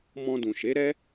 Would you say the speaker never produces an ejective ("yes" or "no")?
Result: yes